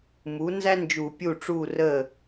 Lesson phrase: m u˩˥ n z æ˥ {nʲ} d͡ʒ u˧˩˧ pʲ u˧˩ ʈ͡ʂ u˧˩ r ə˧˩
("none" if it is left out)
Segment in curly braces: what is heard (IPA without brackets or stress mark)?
n